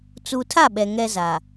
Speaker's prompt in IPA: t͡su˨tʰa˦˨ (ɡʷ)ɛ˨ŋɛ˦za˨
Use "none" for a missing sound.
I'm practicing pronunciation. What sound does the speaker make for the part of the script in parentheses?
ɓ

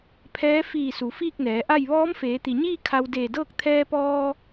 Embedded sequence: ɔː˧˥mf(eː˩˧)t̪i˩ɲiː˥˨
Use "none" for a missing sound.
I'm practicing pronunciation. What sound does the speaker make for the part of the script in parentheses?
eː˩˧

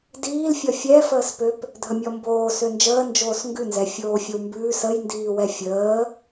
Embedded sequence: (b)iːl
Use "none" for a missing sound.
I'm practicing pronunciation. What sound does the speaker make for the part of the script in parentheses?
d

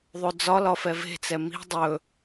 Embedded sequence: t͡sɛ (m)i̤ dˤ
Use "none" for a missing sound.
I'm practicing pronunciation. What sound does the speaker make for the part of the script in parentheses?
m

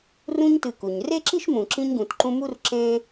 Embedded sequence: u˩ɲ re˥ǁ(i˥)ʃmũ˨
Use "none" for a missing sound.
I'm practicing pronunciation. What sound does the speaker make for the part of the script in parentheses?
i˥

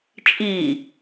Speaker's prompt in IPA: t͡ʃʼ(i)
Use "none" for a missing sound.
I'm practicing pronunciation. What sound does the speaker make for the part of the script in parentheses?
i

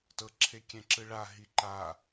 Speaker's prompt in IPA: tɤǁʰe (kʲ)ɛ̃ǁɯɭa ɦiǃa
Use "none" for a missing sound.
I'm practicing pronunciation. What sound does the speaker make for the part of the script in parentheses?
kʲ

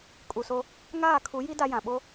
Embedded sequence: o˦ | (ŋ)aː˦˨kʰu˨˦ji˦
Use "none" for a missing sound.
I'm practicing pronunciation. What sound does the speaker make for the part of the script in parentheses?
ŋ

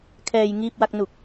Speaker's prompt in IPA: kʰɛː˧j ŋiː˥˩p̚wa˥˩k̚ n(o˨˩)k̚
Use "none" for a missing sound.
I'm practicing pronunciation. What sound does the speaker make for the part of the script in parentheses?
u˨˩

